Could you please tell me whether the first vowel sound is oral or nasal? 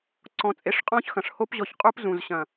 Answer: nasal